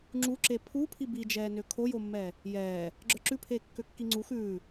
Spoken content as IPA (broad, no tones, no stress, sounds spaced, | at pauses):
ŋ͡ǁ u ǁ e pʰ u pʰ i b i d͡ʒ ɛː n ø kʰ o j o mː ɛː | j ɛː | ɡ͡ǁ ə˞ ǁ ʉ pʰ eː kː ø kː i ŋ͡ǀ u x ʉː